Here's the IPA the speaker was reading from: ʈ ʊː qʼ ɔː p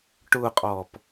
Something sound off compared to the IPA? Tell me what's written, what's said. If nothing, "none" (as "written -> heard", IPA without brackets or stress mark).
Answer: none